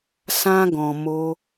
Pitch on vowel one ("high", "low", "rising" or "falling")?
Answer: high